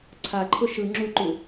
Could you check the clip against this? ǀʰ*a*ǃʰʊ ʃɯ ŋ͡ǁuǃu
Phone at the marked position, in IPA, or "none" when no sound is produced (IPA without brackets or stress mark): a